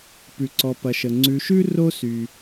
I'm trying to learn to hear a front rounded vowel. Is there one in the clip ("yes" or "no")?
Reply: yes